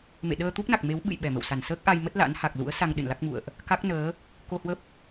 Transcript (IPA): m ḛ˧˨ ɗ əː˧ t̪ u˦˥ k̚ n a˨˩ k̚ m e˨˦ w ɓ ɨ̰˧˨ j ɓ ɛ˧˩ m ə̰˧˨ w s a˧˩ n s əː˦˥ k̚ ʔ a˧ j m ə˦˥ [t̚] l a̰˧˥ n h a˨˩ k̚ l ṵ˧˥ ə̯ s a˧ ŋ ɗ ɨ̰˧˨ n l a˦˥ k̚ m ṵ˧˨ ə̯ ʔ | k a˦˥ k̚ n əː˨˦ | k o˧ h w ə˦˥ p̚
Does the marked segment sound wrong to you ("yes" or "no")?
no